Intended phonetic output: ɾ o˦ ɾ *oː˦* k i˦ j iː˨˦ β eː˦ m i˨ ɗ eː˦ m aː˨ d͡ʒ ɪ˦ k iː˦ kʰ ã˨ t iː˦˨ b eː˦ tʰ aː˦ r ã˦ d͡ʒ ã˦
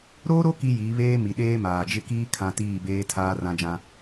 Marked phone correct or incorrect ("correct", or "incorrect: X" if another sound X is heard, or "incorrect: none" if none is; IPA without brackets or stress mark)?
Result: incorrect: o˦